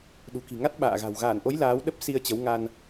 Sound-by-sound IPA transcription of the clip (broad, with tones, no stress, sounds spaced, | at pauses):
ɗ ṳ˨˩ k i̤˨˩ ŋ a˦˥ t̚ ɓ a̰ː˧˨ ɣ a̤˨˩ w ɣ aː˧˩ n ʔ o˨˦ j l aː˨˦ w ɗ ə˦˥ p̚ s i˧ ə̯ t͡ɕ ə˨˦ w ŋ a˧ n